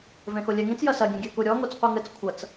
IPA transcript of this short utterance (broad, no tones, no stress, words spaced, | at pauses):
vẽxolʲɛŋĩt͡s jɐsɐɡʲẽɡʲɛ kuɾʲɔ ŋot͡sqʷɨŋɘt͡s kʷʰɐt͡s